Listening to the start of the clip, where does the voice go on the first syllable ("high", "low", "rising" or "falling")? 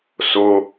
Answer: low